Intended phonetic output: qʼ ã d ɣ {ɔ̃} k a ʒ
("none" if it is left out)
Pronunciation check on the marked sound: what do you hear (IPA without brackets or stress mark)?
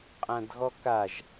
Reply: ɔ